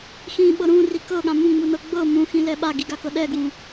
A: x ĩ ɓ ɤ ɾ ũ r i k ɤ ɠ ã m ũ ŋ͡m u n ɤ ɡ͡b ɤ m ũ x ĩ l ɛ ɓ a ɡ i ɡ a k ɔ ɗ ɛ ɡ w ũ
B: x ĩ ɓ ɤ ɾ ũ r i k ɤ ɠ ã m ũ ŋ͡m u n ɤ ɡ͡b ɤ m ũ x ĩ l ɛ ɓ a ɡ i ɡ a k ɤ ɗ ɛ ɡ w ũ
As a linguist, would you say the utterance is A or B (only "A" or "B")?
B